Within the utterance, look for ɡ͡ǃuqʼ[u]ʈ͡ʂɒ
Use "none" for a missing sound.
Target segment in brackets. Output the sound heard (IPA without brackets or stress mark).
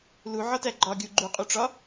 u